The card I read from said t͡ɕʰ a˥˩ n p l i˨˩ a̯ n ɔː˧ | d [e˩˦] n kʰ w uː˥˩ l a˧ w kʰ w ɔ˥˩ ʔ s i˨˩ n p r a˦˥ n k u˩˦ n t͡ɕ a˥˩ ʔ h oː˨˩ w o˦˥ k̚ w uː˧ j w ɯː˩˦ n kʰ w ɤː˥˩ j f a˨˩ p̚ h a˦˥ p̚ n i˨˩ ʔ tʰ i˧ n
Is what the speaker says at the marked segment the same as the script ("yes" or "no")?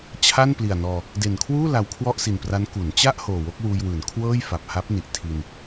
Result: no